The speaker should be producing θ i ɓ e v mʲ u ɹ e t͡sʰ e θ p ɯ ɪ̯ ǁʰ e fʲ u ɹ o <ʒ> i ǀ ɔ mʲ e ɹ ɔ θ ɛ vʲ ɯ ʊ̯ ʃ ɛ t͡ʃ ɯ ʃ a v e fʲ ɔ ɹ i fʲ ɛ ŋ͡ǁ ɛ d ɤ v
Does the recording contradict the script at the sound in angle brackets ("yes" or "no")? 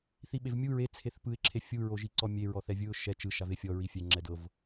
no